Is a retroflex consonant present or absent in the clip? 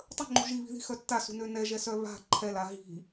absent